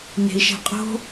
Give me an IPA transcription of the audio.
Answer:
n e̤ i̯ ʃ ɛ̤ qʼ o̤

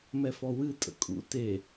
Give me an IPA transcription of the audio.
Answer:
m ɛ f ɔ w ɨ tʼ ə̰ kʼ ṵ t e

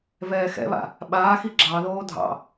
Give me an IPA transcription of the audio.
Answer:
v ɛː x ɛ̰ β a̰ | ɓ aː x i ɡ͡ǁ ɑ ð oː dʱ ɑ̰

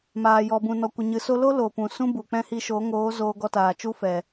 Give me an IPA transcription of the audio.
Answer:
m aː˨ j ɔ˨ b ũ˨ n ɔ˨ kʷ ə˨ ɲ ɨ˨ s o˦ l o˦ l o˨ p ũ˨ s ũ˦ b u˨ k͡p ɛ̃˦ h i˧ ʃ o˨˦ ŋ oː˨˦ z oː˧ ɡ ɔ˧ t aː˨ t͡ʃ u˦ f ɛ˨

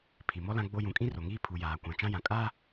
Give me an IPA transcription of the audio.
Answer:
pʰ i˨ m ɔ˦ l ã˦ ɡ͡b o˦ j ũ˨ kʼ ĩ˦ r o˨ ŋ iː˦ pʰ u˨ j aː˨ kʷ ã˨ t͡ʃ ã˦ j ã˨ kʼ aː˦

